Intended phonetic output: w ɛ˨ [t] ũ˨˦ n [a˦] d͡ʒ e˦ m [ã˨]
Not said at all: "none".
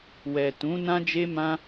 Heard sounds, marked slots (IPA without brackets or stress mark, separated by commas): t, ã˦, ã˦